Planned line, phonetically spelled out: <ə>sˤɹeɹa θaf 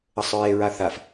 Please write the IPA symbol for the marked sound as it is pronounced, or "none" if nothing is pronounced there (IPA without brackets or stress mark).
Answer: ə